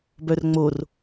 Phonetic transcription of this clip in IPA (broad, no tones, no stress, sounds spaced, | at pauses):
b œ r ŋ͡m o r